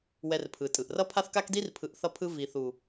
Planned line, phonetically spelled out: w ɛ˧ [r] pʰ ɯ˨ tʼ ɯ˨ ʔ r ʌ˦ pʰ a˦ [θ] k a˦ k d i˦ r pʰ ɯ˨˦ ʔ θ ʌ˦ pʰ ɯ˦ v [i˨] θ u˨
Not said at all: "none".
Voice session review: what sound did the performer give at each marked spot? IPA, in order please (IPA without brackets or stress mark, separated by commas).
r, θ, i˨